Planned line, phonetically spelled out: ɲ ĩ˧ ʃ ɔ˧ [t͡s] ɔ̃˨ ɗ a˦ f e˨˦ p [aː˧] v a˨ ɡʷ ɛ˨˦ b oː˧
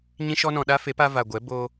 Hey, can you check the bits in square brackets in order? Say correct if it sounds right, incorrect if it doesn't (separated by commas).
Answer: incorrect, incorrect